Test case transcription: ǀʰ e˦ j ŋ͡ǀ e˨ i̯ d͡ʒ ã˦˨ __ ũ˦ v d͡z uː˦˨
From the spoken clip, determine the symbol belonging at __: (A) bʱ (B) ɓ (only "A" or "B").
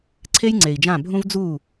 A